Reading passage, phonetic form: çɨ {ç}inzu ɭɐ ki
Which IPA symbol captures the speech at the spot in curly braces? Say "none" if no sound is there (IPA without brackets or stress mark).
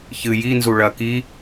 j